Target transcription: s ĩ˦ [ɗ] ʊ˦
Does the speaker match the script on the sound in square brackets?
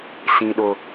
yes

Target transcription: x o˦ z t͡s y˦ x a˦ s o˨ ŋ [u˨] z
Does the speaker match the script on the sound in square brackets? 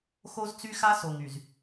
no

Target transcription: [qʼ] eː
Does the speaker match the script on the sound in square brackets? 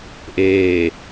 no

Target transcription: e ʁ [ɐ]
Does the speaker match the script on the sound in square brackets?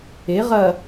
yes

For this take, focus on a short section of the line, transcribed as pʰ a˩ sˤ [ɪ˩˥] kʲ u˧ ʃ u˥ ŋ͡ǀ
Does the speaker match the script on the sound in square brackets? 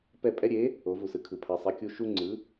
no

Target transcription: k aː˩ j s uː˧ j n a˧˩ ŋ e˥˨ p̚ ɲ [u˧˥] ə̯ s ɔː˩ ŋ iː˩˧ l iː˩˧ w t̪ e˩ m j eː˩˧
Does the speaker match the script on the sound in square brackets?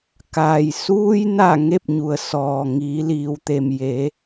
no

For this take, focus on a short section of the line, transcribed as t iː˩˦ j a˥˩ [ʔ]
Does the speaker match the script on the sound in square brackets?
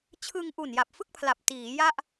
yes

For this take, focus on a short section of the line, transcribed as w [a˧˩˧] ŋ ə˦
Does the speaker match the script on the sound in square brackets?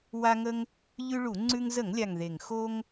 no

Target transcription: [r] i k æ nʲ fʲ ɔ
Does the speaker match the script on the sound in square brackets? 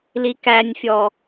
no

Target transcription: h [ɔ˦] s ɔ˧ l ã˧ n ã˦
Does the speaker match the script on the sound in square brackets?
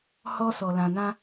yes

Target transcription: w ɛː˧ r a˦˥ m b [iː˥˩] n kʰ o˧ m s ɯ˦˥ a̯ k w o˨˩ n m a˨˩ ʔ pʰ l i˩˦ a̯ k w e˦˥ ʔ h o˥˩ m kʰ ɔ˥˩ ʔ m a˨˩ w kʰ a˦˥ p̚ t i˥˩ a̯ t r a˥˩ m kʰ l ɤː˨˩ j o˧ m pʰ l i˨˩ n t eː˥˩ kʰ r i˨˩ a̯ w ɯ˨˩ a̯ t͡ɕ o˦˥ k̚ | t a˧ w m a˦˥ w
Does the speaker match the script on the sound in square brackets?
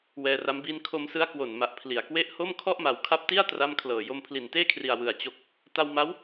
yes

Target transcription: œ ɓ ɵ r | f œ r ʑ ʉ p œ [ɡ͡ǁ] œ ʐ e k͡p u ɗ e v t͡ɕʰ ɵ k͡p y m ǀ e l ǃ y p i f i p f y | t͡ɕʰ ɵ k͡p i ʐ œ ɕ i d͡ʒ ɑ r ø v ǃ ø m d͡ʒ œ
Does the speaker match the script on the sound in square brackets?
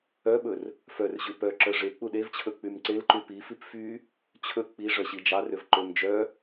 no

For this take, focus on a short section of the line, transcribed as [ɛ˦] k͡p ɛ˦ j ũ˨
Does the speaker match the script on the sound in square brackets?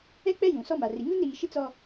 yes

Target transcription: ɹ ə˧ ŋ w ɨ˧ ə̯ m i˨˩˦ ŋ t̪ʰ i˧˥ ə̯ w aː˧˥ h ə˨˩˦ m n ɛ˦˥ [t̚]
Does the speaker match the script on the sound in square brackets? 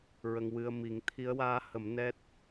yes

